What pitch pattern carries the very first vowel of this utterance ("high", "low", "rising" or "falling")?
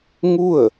falling